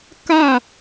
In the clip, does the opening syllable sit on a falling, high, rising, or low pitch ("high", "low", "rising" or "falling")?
falling